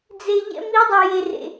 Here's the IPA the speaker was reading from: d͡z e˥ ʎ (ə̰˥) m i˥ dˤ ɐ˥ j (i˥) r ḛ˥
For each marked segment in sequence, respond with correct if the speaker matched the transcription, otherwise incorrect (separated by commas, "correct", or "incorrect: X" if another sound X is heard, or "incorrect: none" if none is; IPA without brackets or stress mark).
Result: incorrect: ɛ̰˥, incorrect: e˥